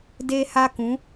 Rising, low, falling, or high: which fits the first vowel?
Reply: high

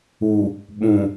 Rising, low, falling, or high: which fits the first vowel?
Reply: low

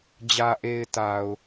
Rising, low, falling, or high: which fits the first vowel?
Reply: low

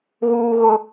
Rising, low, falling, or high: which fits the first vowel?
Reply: high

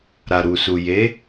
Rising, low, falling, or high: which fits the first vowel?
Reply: low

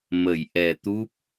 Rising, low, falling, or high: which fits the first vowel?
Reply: low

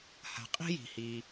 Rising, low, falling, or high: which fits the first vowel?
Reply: low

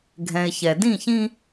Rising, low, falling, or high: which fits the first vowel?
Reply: low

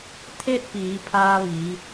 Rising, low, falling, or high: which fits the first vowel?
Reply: falling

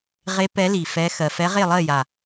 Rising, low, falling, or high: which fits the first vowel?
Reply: rising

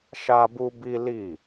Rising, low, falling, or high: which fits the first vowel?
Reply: high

